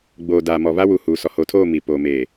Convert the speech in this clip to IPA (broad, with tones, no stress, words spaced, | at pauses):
ɡ͡boː˨daː˨ mɔ˨βa˦wu˨ huː˨sɔ˨ ho˨tʰoː˦˨ mi˨ poː˨meː˨